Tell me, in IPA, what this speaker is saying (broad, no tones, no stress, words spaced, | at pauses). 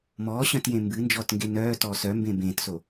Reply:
mɔːɕœ̃tjẽ mbɨnd͡ʒɔːtŋɡe nœːtɔːs œmbẽ bẽːtso